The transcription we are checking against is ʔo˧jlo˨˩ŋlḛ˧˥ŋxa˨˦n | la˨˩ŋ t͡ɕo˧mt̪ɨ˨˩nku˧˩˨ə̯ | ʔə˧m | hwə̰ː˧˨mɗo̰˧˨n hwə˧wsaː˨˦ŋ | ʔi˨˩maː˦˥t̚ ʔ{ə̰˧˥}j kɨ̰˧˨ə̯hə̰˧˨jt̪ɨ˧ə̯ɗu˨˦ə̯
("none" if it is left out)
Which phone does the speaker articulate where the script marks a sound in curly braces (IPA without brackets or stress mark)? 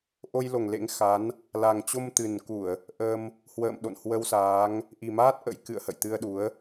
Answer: ə̰˧˥